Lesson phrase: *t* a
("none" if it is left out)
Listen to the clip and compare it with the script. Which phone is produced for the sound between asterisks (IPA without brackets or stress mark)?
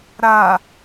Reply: ɾ